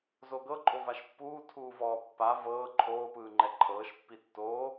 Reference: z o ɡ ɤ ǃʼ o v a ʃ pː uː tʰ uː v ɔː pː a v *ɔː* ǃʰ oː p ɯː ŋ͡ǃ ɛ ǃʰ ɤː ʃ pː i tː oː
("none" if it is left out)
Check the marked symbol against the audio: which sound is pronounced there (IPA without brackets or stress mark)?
ɤː